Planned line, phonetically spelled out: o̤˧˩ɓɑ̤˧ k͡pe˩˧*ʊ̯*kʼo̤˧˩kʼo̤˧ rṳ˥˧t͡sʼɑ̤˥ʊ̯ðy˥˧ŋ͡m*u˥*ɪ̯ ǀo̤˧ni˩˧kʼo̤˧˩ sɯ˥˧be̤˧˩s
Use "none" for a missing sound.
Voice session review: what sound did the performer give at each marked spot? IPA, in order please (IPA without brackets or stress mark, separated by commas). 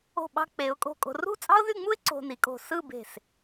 ʊ̯, u˥